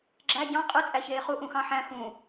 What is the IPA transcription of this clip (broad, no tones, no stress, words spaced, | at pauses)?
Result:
ɡ͡ǁæ ɟɑ̃ qʼɯ t͡sʼæçeːχu ʔũxɑ̃ħæ̃ xũ